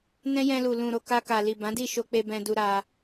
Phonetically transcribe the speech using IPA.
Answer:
nɛ̃˦jɛ̃˧lu˨ lũ˨ɾo˨ ka˧ka˨ li˨bã˨˦di˦˨ʃo˧ k͡pe˧bɛ̃˧du˧ ɾa˧

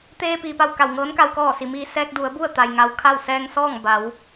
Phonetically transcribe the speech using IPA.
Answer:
t̪eː˧ piː˩pa˧˩w ka˧˩wŋɤː˧˥nka˧w kɔː˧˩si˩ miː˧ sɛː˧k̚du˩˧ə̯bu˥˨ə̯t̪a˩j ŋa˧w kʰa˥˨w sɛː˧ŋ sɔː˥˨ŋba˩˧w

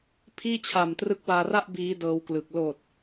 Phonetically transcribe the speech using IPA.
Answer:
pʰiː˥˩t͡ɕʰa˨˩m trɯ˦˥k̚waː˧ra˥˩ʔ biː˦˥ dɤː˦˥wklɯ˨˩k̚ loː˨˩t̚

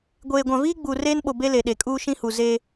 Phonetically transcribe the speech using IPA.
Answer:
ɡʷeː˨ɡʷã˨viː˦ ɡ͡buː˨reː˦nɓo˨ be˦le˨ɗe˨kʼuː˦ ʃĩ˦hu˨ zeː˦

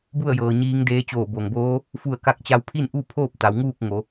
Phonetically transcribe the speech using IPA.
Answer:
bu˥˨ə̯jɤː˩ ɲiː˧˥ŋdeː˧˥ t͡ɕoː˧˩bo˩ŋboː˧˥ | fu˧˩ə̯ka˧k̚t͡ɕa˧w pʰi˥˨nʔu˥˨pʰoː˥˨p̚ t̪a˩˧wŋuː˥˨k̚ŋo˩˧

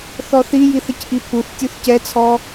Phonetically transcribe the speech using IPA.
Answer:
θɔθijiθ əcʔipʰuθtʲuθ cɛt͡sʰɔ

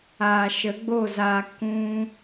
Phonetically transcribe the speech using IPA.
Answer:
aː˨ʃə˨˦ɡ͡bo˦˨zaː˧ kũ˧

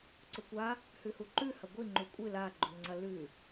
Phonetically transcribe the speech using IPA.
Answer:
ǀɵkʷa | hʉhuǃʉ hɐɡʷi ŋ͡ǃukʷʼɨ la ɡ͡ǃʉŋ͡ǀɐlʉ

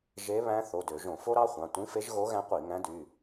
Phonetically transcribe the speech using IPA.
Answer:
ʒe˧˥βæ̃˧˥ θo˩˧˩dø˧˩˧ ʒõ˧˩˧fo˥ɾɑ˥χʷɑ̃˩˧˩ tʷĩ˧˥fe˧˥ʒɣo˧˥ɣæ̃˧˥ qʷi˧˩˧ŋæ̃˧˥dy˩˧˩

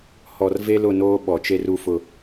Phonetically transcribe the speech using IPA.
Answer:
hɔ˨rve˦lʊ˦˨noː˦ ɓɔ˨t͡ʃe˦r u˦fʊ˦˨

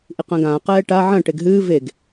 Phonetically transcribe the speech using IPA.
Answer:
ʔiqɐ̃ːɡãː qɛːʈa ʕɐ̃ ʈeɡɦɨː veɡ

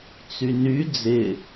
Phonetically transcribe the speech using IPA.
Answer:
t͡syny d͡zɪ

